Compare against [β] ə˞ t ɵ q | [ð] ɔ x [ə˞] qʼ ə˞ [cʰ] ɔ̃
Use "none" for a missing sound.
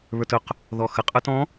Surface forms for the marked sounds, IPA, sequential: β, ð, ə, t

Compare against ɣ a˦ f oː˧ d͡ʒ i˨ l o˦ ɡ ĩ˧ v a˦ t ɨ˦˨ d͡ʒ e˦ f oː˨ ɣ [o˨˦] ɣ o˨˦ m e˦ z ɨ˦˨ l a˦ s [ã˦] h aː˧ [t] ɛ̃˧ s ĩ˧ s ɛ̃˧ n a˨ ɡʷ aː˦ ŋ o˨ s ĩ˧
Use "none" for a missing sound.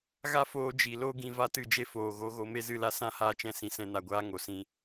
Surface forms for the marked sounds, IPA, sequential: o˨˦, ã˦, t͡ʃ

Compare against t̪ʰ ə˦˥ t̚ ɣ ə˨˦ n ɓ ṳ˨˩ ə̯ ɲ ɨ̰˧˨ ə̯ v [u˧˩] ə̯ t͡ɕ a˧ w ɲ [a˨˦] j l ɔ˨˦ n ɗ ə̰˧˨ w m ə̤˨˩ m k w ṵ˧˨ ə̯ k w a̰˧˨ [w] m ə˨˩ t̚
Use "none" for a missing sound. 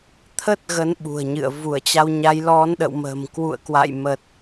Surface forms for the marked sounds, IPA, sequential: u˧˩, a˨˦, j

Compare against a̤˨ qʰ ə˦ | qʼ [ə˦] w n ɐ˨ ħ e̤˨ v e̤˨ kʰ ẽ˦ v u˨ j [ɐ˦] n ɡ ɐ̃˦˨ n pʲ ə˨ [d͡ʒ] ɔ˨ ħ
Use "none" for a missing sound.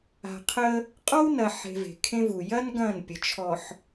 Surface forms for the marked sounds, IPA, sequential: ɔ˦, ɐ˦, t͡ʃʰ

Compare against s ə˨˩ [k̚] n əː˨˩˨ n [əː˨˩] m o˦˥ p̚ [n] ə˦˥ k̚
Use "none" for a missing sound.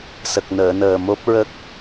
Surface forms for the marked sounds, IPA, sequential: k̚, əː˨˩, ɹ

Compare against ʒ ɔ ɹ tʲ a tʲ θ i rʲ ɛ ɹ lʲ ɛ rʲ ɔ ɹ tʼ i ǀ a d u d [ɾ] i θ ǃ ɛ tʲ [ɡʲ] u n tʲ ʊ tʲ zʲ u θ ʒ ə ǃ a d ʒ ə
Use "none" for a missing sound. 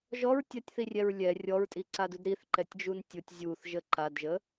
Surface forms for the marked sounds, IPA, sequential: ɾ, d͡ʒ

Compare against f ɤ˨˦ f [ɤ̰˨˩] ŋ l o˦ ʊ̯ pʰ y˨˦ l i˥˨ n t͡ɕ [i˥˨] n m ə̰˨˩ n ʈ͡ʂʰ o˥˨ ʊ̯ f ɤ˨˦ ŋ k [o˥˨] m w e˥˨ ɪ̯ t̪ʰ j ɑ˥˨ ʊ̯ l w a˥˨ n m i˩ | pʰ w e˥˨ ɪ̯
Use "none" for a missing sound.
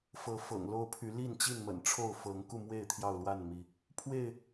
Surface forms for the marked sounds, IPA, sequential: ɤ̰˨˩, i˥˨, u˥˨

